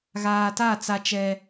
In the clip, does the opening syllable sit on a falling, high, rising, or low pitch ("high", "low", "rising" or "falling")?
low